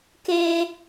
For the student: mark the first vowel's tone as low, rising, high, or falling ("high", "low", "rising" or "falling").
high